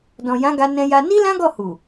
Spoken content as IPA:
dɔ̃˨jã˨˦ ɡa˧nɛ̃˧ja˧ ni˧ lã˦ɡɔ˦˨hu˨

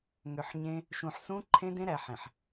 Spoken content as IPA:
ŋø˨ħɲẽ˦ | ʃũ˨ħsũ˦ǃʰẽ˦dẽ˦ ɾæ˨ ħẽ˨ħ

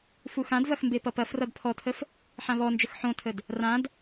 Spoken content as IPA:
fuxãdvɐx mbepʌpɐfrʌd pʰɔtʰəf | ħãβɔnd͡ʒəx ħõtʰəd | rãd

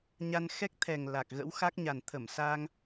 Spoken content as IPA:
ɲa˧n xɛ˦˥k̚t̪ʰɛ˨˩ŋ la˨˩k̚ ɣə̰˧˥wxa˦˥k̚ɲa˨˩n t̪ʰə˧˩m sa˧ŋ

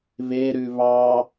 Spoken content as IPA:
βeɾʉ βɑ

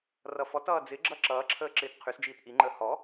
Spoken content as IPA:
rʌfɔtʌː d͡zɪɡ͡ǁʌ ǁʌːǁʰəː ǁɪːtqʰysd͡ʒiːt ʔiŋ͡ǃəː hɔ

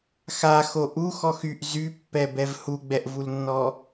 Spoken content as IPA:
xaxo ʔuxɔx yʔ zypːɛbɛv huɡ͡bɛʔvulnːɔ

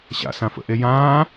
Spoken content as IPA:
ɕa̰sã fə̰ʔe jãː

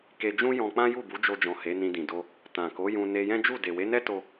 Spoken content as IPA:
ke˧d͡ʒũ˦jɔ̃˧ k͡pã˦ju˦˨bu˨˦ d͡ʒo˧d͡ʒɔ̃˨ he˨˦nĩ˧dĩ˨do˧ | tã˨ko˨˦jũ˧ ne˧jɛ̃˦d͡ʒu˦˨ de˨we˨˦nɛ˦to˧

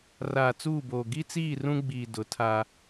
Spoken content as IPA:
raː˨t͡suː˦˨boː˨ ɡi˦t͡siː˦˨ rũ˦ɡ͡biː˨ dʊ˨˦tʰa˦

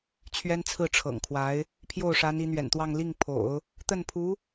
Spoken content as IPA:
t͡ɕʰɥɛ˥nt͡sʰɹ̩˥˩ʈ͡ʂʰɤ̰˨˩ŋkʰwa˧˥ɪ̯ | pʰjo˥˩ʊ̯ʂa˧˥n i˧˥n̪ɥɛ̰˨˩nt̪wɑ˥˧ŋ li˥˩ŋpʰo̰˨˩˦ʊ̯ | t̪ə˥˩npʰu˧˥

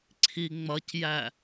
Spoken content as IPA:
ǀʰiŋ͡mʌcjæ

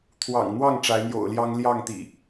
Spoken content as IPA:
t̪ʰwɑ̰˨˩ŋn̪wɑ˥˨ŋ ʈ͡ʂa˨˦ɪ̯n̪jo̰˨˩ʊ̯ljɑ˦ŋ ljɑ˥˨ŋt̪ḭ˨˩

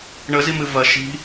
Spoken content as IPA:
ɳəzimɨ vɐ ʃi̤

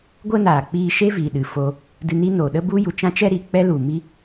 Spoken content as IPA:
ɡʷə˦naː˨ k͡piː˧ʃe˦ viː˨ ɗɨ˨ foː˧ | dɨ˧ni˦noː˨ ɗə˦bu˦ju˨t͡ʃã˦ t͡ʃɛ˦ɾi˨k͡pɛ˦lu˨ mi˦

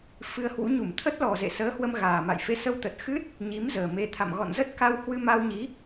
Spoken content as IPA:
fɨ˧ə̯hwṵ˧˥ ɲu˧˩mt̪ʰə˦˥t̚lɔ˨˩zḛ˧˨ səː˨˦hwə˧m ɣaː˨˩ma̰˧˨j fe˨˦sə˧wt̪ə˨˩t̚ xɨ˦˥t̚ | ɲi˨˦m zəː˨˩me˧ t̪ʰa̰˧˨m ɣɔ̰˧˨nzə˦˥t̚ka˧w hwɨ˧ma˧wɲi˨˦

